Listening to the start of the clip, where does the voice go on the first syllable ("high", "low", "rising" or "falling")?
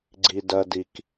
high